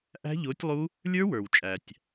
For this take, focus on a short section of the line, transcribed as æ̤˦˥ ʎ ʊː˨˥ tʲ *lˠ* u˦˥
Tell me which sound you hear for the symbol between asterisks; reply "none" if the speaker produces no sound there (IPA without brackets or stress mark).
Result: lˠ